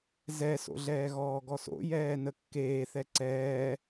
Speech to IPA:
z ɛ s o̰ ɮ ɛː ɣ ɔː ɡ ɔ s o̰ j ɛː n ə kː eː θ ɛ ǀ ɛː

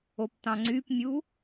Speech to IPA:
o p t̪ ɑ̃ ŋ͡ǀ y p mʲ u

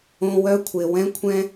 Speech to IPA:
õ˦ w œ˦ kʷʰ e˨ w ɛ̃˦ kʷʰ ɛ̃˦

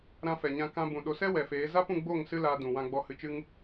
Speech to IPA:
ɾ ã˧ f ɛ˨ ɲ ã˧ k ã˧ b ũ˨ ɗ o˨ s ɛ˦ w ɛ˨ f eː˨˦ z a˦ p ũ˧ ɡ͡b o˦˨ ŋ s ɨ˦ l aː˧ d ũ˨ w ã˧ ɡ͡b ɔ˧ h ɨ˧ t͡ʃ ɨ˦ ŋ

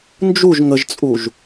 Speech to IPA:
n d͡ʒ u ʒ ŋ ə ʒ t͡sʼ u ʒ

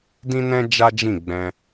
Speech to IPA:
d ĩ˦ n ɛ̃˦ d͡ʒ a˦ d͡ʒ ĩ˦˨ ɡ͡b ɛ̃˧

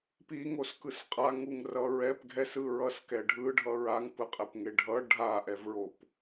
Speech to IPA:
p i ŋ o s k ɯ s qʼ a ŋ u ŋ r ʌ ɹ ɛ p ɡʱ ɛ s ɯ ɹ ʌ s k ɛ ɖʱ ɯ ɖʱ ʌ ɹ a ŋ p ɯ qʼ e p ŋ e ɖʱ ʌ ɖʱ a ʔ ɛ v ɹ o p

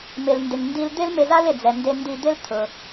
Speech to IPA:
m ɪ˩ l n d ɪ˩ ŋ n d i˧ l d̪ ɪ˥ l m ɪ˧ z a˥ l ɪ˩ d͡z ɛ˩ n d e˧ n d i˧ d̪ ɪ˥ l t̪ʰ ʊ˩

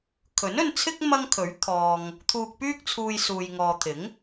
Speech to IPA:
kʰ ɵ˨˥ n ɵ˧ n t͡sʰ ɪ˥ k̚ m ɐ˥ ŋ kʰ ɵ˨˥ ɥ t̪ʰ ɔː˧ ŋ | t̪ʰ uː˧ k̚ p yː˥ k̚ t͡sʰ uː˧ j s uː˨ j ŋ ɔː˨ t̪ʰ ɪ˨˥ ŋ

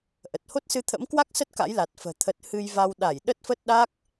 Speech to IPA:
ʔ ə˨˩ t̚ h o˦˥ t̚ s ɨ˧ t̪ʰ ə̰˧˥ m k w a˦˥ k̚ s ə˦˥ t̚ k a̰˧˥ j l a˨˩ t̚ f ə̤ː˨˩ t̪ʰ ə˨˩ t̚ h ɨ˧ j v a˧ w ɗ a˧˩ j ɗ ə˦˥ t̚ f ə˦˥ t̚ ɗ a˦˥ k̚

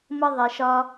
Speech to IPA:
m ə˥ ðˤ e˧ ʃ ɒ˥

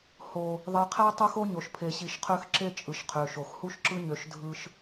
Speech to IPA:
h o˨ | ðˤ e˨ qʰ æ˦ tˤ o˦ x o˦ ɲ o˨ ʃ pʰ e˨ ɕ i˨ ʃ qʰ ø˦ x ǁ e˦ t͡ʃʼ ɯ˨ ʃ qʰ ø˨ ʃ o˨ x h u˦ ʃ ǁ ɯ˦ ɲ ø˨˦ ʃ dʱ ɯ˦ ʃ

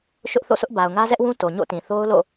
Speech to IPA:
ʃ ʊ˦ ʔ θ o̰˦˨ s ʊ˦ ʔ b a˨ ʊ̯ ŋ ä˦ z ɛ˦ ʔ w ũ˦ t o˨ ɲ o̰˦˨ t ĩ˨ θ o˦ ʊ̯ l o̰˦˨

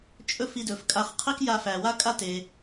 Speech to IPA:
t͡ʃʼ ɵ˥ f i˧ d ɵ˩ f kʼ a˧ χ qʰ i˥ k j a˧ f æ˩ w a˥ kʼ a˥ t e˩

